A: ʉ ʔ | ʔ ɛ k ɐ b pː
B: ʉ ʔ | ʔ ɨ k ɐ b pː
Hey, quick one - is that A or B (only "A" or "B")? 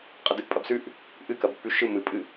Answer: B